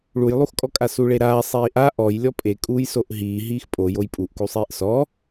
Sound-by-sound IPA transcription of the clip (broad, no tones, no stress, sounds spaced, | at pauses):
ɭ u j lˠ u x kʼ ɔ kʼ a s u ɭ e ɾ aː sˤ iː ʔ a ʔ ɔ j lʲ ɔ pʼ e kʼ uː j s o ʔ ɦ iː ɦ iː x pʼ o j o j pʼ u ʔ k u sˤ iː ʔ s ɔ